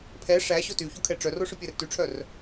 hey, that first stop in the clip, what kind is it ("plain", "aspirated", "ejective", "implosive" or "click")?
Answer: aspirated